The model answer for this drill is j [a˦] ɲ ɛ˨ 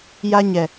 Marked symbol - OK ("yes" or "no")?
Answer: yes